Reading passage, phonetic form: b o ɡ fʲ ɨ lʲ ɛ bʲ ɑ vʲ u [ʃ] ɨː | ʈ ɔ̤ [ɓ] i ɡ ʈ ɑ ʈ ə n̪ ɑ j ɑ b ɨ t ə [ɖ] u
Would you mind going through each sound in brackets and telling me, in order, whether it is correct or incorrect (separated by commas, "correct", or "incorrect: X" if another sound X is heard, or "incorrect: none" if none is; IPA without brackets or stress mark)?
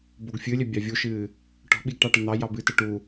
correct, correct, incorrect: ʈ